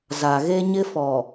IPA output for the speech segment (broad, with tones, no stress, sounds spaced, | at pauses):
z a˨ ɣ e˦ ɲ ɪ˦ f ɔ˨